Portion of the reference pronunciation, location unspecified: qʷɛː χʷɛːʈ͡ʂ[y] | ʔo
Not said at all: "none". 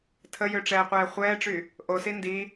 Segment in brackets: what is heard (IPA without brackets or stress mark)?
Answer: y